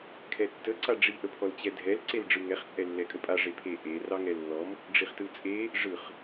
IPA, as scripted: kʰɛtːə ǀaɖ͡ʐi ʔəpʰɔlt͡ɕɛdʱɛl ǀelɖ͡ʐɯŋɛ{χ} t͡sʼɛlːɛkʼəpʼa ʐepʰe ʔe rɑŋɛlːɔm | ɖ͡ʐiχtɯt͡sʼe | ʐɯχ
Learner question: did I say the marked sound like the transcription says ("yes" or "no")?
yes